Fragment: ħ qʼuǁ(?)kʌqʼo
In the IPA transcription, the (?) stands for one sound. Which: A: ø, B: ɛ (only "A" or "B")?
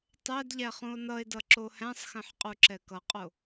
B